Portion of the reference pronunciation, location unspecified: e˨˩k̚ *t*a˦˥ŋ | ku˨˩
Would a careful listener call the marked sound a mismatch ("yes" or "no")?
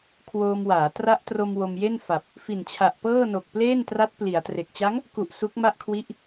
yes